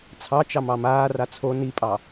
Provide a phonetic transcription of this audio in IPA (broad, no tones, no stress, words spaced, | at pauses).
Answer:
t͡sʰɑ t͡ʃɑmɑmaːra t͡sʰo nipʼɑ